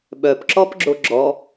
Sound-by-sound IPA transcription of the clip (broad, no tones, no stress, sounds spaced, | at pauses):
ɓ œ p ǁ ɔ p ɡ͡ǁ o ɡ͡ǁ ɔ